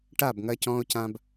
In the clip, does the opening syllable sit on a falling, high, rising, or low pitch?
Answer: falling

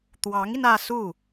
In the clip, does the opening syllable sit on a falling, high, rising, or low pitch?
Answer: rising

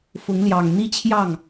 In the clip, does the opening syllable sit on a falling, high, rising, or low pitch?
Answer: rising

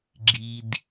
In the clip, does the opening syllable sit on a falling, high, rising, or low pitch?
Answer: low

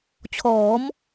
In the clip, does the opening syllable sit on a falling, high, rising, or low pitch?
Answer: rising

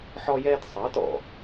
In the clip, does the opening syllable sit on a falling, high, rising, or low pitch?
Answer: high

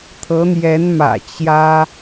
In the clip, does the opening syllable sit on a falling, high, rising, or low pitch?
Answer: rising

